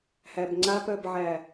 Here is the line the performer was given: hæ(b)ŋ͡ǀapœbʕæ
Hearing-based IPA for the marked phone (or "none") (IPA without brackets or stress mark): b